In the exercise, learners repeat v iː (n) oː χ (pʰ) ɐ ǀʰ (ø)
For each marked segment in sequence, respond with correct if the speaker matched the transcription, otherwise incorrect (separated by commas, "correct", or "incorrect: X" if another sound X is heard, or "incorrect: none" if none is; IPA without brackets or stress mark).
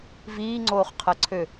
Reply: incorrect: ŋ͡ǀ, incorrect: qʰ, correct